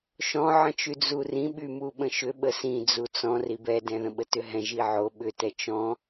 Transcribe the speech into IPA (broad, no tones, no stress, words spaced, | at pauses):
ʃɔ̃ʕə̃t͡ʃy d͡zurĩɓy muɓə̃ʃʏ ɓəsĩ d͡zut͡sɔ̃ ribɛdɛ̃ðə̃ ɓətʏɦɛ̃ ʒiʕo ɓʏtɛ t͡ʃɔ̃